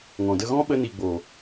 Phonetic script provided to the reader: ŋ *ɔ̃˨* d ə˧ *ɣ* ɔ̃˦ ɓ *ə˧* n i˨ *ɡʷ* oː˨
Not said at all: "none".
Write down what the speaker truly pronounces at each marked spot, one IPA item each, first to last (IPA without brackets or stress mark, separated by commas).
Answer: ɔ̃˨, ɣ, ə˧, ɡ͡b